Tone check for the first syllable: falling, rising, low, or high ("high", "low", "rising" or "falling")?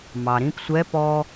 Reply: low